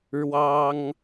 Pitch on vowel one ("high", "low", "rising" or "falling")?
high